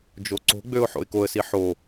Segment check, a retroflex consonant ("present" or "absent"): absent